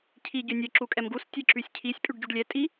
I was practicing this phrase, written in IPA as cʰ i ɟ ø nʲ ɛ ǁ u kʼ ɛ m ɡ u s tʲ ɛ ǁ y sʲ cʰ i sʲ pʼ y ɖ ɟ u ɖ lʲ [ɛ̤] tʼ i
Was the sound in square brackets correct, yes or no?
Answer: no